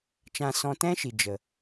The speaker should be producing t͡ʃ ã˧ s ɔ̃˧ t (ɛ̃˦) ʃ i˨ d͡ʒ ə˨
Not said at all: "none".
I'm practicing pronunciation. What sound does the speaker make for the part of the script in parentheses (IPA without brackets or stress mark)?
ɛ̃˦